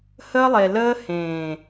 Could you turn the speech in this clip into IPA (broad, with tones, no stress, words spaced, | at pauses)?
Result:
həː˦lˠe˨ ləː˦hẽː˨